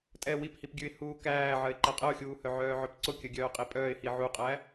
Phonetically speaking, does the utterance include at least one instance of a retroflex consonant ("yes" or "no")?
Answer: no